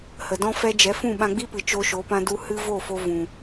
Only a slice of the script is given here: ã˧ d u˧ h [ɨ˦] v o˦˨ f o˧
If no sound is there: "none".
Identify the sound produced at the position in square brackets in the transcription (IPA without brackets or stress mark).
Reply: ɨ˦